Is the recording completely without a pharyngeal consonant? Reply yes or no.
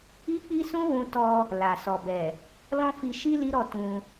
yes